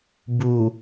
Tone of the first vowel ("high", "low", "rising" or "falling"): low